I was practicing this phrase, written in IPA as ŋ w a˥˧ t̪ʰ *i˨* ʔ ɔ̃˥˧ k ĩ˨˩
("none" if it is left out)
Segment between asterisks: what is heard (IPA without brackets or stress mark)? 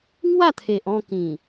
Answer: e˨